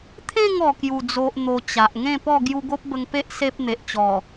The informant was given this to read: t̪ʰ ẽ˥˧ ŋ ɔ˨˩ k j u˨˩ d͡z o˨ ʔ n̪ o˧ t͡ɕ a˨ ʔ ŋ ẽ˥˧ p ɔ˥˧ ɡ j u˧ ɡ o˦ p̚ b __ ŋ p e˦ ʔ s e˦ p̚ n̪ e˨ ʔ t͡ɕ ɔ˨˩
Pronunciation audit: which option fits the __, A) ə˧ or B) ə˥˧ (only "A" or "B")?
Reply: A